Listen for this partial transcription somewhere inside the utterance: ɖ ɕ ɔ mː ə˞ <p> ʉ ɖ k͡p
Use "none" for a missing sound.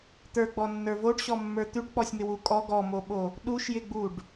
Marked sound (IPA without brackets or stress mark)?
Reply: t̪